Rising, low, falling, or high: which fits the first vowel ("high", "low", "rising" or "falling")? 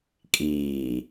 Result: low